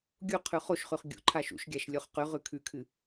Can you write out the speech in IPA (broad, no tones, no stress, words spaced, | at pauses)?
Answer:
ɡʲu qʰʉχoʃχʉχ ɡʲṵ ǃʰaʃṵʃɡʲaʃ lʲoχqʉʁʉ kʰʉkʰɨ